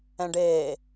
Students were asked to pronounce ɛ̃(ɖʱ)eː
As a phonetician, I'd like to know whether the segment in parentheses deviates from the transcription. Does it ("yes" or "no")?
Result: yes